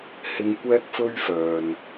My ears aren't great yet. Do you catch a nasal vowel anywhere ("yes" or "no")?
no